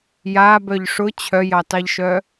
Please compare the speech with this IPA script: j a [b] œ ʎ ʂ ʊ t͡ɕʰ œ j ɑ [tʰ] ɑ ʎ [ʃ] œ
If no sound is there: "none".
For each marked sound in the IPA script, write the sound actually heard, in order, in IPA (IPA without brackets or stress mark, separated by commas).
b, t, ʃ